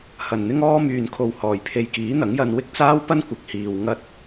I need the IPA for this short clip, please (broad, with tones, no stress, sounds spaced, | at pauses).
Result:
h ɐ˨˩ n n̪ ɪ˥ ŋ ɔː˥ m yː˨ n kʰ o˨ w h ɔː˨˩ j pʰ e˧ j k iː˨˥ n̪ ɐ˨˥ ŋ j ɐ˧ n w ɪ˥ k̚ t͡s aː˥ w p ɐ˥ n kʷ ɪ˨˥ k̚ h iː˨ w ŋ ɐ˥ t̚